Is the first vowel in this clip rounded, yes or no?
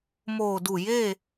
yes